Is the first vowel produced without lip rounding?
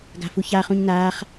yes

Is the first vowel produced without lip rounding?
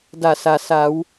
yes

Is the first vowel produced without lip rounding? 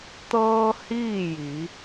yes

